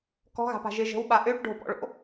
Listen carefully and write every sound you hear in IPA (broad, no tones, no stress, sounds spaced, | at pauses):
k ɔ̤ ɣ a̤ p a̤ ʒ ɪ ʒ ə̤ w ɓ a ʔ ø ʈ ɖ o̤ p ɔ̰ ɭ o̰